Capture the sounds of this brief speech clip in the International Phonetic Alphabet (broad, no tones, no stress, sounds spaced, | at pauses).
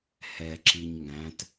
h ɛ ǁ i ɲ ŋ æ̃ t